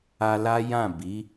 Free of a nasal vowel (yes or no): no